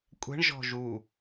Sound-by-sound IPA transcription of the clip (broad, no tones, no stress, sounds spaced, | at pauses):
kʷʼ ɛ̤ ɳ ʒ ɔ̤ ʒ u